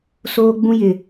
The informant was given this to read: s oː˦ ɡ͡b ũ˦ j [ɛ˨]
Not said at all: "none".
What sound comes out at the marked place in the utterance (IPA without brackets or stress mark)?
ɪ˨